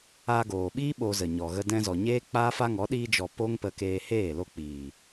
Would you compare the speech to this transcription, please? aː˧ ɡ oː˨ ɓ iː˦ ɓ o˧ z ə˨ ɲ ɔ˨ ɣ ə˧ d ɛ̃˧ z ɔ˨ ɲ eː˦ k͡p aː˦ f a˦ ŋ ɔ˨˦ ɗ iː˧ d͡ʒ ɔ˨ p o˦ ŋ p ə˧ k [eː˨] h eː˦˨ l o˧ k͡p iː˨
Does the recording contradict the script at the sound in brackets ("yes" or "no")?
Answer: yes